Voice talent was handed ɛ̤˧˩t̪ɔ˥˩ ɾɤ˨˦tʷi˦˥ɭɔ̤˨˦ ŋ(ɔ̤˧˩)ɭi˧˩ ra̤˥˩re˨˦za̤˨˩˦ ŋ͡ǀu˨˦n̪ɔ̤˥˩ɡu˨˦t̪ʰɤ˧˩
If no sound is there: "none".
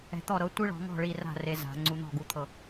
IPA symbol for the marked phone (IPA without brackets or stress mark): ɔ̤˥˩